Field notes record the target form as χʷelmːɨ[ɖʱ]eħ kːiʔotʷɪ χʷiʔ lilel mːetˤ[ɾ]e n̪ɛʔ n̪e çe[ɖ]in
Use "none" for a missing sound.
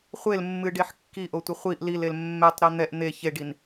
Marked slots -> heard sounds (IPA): ɖ, ɾ, ɖ

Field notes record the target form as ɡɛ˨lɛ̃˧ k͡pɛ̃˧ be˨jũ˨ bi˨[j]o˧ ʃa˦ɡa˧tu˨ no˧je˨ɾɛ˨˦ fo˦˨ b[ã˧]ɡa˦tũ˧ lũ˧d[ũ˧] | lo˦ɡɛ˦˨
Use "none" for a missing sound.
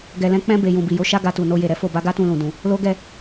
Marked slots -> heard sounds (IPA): j, a˧, ũ˧

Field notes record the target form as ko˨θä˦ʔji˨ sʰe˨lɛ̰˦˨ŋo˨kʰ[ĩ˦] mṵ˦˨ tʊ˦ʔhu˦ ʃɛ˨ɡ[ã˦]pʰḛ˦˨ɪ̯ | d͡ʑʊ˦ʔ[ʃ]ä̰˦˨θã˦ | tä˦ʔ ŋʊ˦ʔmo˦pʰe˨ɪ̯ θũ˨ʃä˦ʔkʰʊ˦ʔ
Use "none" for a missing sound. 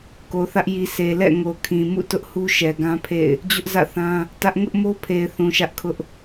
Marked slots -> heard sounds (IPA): ĩ˨, ã˦, z

